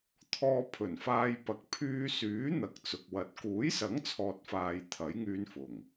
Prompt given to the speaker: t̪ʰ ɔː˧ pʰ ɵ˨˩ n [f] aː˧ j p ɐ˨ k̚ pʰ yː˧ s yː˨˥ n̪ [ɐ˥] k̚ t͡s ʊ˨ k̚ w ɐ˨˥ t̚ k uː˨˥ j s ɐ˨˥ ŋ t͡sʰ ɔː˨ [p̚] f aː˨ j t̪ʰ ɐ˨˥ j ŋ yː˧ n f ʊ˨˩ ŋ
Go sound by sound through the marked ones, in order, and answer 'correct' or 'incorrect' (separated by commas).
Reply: correct, incorrect, incorrect